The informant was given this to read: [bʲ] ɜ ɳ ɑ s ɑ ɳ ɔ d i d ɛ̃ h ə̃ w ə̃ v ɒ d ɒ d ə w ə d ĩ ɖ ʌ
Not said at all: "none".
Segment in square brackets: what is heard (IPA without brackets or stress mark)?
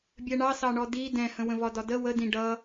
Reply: bʲ